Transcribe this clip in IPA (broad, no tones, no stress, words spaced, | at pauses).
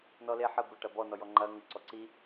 nɔle ħə bəʈɐ bɔnɔjɔ ŋ͡ǃɐ ŋə ǀɔǀi